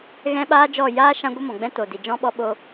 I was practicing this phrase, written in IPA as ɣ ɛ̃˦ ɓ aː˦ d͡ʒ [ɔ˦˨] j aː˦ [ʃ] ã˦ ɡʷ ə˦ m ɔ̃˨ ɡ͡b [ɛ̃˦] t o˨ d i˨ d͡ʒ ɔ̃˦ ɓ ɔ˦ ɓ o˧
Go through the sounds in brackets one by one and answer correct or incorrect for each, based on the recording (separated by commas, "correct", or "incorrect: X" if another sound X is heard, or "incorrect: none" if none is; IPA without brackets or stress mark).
correct, correct, correct